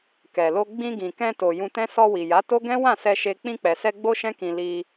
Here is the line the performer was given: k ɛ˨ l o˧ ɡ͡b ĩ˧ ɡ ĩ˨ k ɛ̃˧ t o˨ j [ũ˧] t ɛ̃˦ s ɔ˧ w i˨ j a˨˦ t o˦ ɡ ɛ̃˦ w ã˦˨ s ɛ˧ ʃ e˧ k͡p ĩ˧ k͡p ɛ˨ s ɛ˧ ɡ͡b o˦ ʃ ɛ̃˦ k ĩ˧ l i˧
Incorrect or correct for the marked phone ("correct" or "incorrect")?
correct